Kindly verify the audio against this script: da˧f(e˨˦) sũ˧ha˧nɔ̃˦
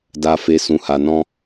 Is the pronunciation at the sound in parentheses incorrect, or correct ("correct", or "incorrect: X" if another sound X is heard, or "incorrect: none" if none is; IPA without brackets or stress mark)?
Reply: incorrect: e˧